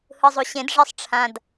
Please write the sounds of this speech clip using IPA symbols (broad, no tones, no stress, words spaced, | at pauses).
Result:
hɯzˤuɕẽd ʐisˤʈ͡ʂʰãd